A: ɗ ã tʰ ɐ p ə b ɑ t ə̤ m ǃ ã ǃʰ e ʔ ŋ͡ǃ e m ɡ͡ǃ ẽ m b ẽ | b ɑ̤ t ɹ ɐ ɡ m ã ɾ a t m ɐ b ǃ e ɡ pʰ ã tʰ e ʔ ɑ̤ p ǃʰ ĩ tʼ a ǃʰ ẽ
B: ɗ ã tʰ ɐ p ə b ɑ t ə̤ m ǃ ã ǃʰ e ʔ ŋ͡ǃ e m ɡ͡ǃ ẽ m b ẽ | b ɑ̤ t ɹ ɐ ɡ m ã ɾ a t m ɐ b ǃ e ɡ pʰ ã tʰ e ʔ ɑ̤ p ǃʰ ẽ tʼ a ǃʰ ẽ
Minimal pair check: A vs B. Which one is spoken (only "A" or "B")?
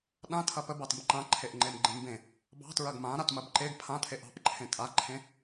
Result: B